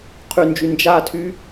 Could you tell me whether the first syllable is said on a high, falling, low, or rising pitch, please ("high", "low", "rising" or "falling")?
low